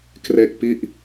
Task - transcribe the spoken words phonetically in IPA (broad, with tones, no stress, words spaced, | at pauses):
kre˥˩k̚ pi˥˩ʔ